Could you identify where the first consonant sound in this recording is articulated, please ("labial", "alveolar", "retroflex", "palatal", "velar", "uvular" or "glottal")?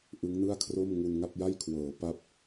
glottal